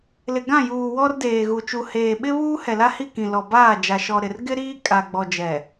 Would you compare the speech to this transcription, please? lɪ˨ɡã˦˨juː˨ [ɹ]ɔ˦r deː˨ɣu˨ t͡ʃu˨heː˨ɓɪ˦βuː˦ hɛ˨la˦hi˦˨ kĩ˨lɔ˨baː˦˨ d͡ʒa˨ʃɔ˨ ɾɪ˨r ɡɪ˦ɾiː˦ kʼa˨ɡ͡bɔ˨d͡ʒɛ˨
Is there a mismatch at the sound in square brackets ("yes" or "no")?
yes